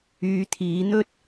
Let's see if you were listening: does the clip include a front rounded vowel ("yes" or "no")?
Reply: yes